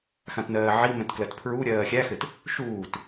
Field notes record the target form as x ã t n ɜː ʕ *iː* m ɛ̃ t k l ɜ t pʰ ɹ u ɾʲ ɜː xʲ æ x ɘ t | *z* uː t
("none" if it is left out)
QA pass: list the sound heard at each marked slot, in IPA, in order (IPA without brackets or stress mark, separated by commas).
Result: i, ʃ